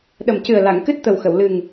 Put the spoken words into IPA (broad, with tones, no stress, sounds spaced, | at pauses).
ɗ ə˨˩ m c ɨ˨˩ ə̯ l a˨˩˨ ŋ k ɨ˦˥ t̚ t̪ ə˨˩ w x ə˨˩˨ w l ɨ˨˩ ŋ